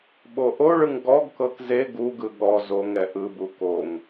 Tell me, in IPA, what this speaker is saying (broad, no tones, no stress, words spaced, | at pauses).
ɓoʔoɭɯŋ ɡɔɡkɤk ze ɡuɡɯ ɠɔ zoŋɛ ʔɯbu koŋ